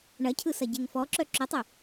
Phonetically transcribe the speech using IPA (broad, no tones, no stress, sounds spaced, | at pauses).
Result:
ɳ ɐ cʰ ɯ s ɐ ɟ e ŋ f ɔ ǁ œ ǁ ɵ tˤ ɵ